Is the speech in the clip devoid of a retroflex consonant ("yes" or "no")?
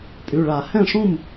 no